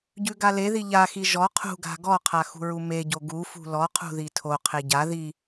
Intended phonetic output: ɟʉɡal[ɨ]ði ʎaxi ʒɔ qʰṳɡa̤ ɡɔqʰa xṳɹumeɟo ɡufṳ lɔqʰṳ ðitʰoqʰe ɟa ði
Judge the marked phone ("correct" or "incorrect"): incorrect